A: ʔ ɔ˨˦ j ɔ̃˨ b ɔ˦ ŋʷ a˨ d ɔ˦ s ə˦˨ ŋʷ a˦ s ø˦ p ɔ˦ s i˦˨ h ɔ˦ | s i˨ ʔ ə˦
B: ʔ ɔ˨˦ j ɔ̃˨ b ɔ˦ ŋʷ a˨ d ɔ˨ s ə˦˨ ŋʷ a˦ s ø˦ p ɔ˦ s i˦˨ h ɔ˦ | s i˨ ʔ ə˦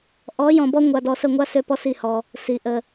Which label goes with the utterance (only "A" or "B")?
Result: B